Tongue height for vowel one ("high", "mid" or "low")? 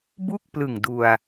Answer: high